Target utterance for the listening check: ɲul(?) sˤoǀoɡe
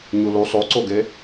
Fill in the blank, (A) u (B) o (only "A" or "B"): A